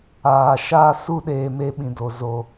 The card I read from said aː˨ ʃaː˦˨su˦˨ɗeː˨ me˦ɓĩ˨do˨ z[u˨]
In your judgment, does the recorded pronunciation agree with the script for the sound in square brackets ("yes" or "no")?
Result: no